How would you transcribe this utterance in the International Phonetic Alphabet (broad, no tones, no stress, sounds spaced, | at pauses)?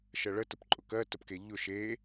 ʃ ɜ ɭ ə t ə p ǃʼ ʊ k ɜ t ə p k e ʎ ʊ ʃ e